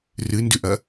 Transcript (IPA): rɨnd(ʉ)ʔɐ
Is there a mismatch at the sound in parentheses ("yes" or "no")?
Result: no